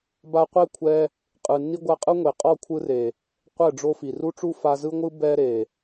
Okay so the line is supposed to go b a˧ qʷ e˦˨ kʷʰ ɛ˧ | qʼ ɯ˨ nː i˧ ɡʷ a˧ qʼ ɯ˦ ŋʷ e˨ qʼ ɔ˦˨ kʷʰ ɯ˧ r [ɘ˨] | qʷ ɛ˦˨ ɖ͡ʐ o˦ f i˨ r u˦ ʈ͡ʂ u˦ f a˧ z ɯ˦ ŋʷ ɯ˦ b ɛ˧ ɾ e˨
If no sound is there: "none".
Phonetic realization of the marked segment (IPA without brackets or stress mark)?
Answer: e˨